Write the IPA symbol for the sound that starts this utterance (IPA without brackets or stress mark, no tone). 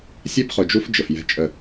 sʲ